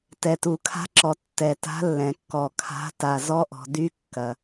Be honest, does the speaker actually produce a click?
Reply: yes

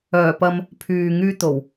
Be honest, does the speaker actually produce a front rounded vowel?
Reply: yes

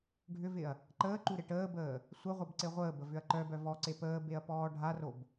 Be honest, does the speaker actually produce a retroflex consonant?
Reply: yes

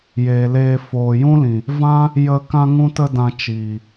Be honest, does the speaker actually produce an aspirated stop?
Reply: no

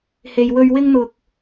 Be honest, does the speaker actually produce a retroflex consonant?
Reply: no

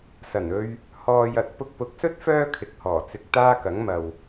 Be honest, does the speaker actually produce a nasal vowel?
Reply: no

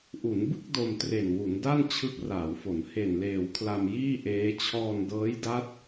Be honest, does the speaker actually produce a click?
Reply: no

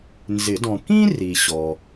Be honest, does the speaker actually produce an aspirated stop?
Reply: no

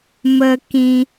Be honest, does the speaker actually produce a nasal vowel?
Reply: yes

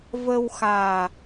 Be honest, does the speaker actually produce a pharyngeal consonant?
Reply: no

